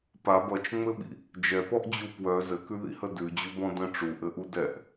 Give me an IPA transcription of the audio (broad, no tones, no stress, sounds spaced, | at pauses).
p a b ʌ t͡ʃ ŋ͡m ɘ ɓ ḭ | d͡ʒ ɛ p ɔ ʔ d͡ʑ u p w œ z ɘ k ʉ ð ḭ h ə d ʉ d͡ʑ u b ɔ̃ d ə̃ ʈ͡ʂ u ʔ ɘ ʔ u d ɛ ʔ